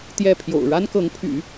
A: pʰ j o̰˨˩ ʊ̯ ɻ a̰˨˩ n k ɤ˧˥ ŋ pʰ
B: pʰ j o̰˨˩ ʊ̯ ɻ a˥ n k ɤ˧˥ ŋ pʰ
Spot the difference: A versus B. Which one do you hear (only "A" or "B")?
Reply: B